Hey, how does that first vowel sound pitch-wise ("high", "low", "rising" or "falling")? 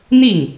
falling